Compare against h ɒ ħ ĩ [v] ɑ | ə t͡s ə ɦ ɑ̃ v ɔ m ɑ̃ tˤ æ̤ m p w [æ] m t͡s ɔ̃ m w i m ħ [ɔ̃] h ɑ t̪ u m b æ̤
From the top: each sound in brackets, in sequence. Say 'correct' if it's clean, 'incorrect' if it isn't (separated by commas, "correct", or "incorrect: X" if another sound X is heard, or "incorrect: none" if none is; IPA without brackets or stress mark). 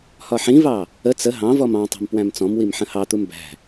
correct, incorrect: æ̃, incorrect: ə̃